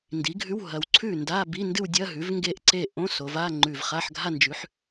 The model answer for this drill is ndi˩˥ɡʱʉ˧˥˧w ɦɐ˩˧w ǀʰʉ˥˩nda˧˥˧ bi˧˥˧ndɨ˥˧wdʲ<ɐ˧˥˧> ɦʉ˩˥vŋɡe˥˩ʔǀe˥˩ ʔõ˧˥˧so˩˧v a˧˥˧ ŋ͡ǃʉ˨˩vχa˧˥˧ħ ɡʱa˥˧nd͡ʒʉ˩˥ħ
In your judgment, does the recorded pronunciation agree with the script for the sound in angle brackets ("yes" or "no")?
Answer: yes